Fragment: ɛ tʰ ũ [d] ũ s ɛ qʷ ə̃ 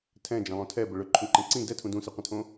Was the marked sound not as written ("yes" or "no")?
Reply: no